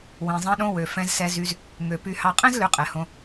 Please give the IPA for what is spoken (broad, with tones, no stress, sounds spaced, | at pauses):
w ĩ˩ zˤ ɛ̃˨ ɗ õ˨ w ø˩ f ɛ̃˨ z s ɛ˨ z y˨ z | ŋ ø˩ p y˨ h ɑ˨ qʼ ɛ̃˥ z l ø˨ qʼ ɛ˩ h õ˨